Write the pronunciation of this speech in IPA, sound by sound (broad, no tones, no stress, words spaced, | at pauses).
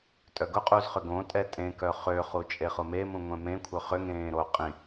tʼœɡʊqʼuz χʏɡõtʼɛ tʼẽkœ χøχu t͡ʃʼeχʊmemũ ŋʷɛ̃mẽkʷʰœ χʏŋẽː ɾo qʼĩ